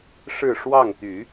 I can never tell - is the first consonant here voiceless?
yes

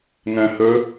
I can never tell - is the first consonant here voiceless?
no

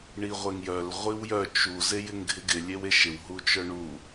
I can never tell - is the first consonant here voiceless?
no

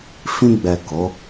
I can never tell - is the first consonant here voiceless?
yes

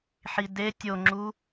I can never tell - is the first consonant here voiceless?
yes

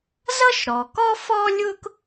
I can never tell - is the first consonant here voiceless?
no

